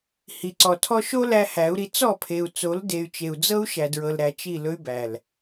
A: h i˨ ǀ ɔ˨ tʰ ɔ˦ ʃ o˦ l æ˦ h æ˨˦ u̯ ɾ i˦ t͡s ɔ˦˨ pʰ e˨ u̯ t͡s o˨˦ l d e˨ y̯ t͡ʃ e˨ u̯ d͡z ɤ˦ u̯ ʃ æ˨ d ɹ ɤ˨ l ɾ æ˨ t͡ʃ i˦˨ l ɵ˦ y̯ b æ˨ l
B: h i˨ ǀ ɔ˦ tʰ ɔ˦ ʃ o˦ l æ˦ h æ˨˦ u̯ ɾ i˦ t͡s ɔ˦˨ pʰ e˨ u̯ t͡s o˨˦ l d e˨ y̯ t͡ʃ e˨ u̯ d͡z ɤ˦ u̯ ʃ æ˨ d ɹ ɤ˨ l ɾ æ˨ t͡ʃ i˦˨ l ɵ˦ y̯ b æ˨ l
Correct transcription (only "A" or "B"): A